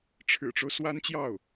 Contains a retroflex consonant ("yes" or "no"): yes